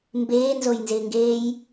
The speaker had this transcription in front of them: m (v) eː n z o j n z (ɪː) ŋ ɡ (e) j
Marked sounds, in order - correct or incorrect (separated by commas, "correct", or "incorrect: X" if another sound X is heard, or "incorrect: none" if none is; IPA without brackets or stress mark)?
incorrect: b, correct, incorrect: eː